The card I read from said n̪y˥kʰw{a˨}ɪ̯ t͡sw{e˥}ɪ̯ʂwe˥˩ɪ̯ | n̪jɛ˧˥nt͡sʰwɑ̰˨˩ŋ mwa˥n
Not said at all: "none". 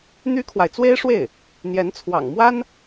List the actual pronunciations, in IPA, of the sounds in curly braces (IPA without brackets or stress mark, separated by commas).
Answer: a˨, e˥